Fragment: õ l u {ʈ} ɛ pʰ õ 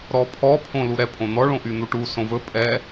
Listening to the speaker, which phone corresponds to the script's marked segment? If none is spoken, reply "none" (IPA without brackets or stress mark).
ɾ